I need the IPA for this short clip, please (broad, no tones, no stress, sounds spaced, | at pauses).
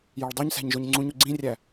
j ɒ ɭ dˤ u ɲ s æ̤ ɲ ʒ o ɲ ŋ͡ǀ ũ ɲ u ɡ͡ǀ ĩ rʲ æ